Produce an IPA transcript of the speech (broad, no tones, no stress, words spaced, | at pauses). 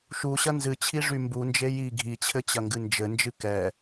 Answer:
ʃuɕɐ nzɨt͡ɕʰiʐy mbund͡ʒe ji ɡʱit͡ɕʰɘt͡ɕɐŋɡɨ nd͡ʒɘnd͡ʒɨ kɛ